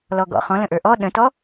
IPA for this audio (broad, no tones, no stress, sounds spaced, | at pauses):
l ɔ ɡ ɔ̰ χ ɔ̃ l ə̃ ʔ ə˞ ʔ ɔ ɗ ə̃ t ɔ